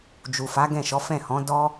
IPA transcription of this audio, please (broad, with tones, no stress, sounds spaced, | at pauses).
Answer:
d͡ʒ u˨ f a˨˦ ɡ ɛ̃˦˨ ʃ ɔ˨˦ f ɛ̃˦˨ h ɔ̃˨˦ d ɔ˦